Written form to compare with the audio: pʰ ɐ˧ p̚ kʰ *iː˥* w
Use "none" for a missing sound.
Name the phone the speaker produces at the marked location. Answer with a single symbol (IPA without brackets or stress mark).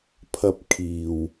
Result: iː˨